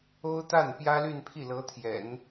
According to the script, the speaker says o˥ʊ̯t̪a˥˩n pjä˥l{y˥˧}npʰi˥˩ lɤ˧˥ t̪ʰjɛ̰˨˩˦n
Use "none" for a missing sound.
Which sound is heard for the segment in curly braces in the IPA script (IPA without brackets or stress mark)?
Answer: y˥˧